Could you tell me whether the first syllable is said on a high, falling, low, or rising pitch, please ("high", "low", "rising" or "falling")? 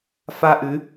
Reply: high